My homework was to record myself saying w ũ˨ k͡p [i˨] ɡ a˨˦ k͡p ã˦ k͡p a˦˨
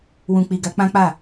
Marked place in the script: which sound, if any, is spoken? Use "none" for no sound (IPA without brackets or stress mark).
i˨